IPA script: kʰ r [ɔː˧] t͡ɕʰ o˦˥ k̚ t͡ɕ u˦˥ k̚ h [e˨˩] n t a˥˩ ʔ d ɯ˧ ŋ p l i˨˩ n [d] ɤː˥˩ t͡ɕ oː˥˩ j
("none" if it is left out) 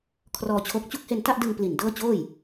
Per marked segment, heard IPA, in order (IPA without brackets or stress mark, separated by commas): ɔː˧, e˧, d